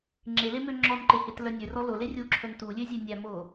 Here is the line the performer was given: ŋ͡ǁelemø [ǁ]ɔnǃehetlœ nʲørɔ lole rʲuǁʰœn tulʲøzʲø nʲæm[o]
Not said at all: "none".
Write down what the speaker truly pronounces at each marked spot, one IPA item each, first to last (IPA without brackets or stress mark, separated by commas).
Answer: ŋ͡ǁ, o